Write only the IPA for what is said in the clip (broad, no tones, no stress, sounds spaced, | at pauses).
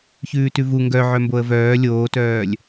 ç ʉː t ʉ v u ŋ ɡ œ ʕ œ m b o ə̯ v œː lʲ oː t œː lʲ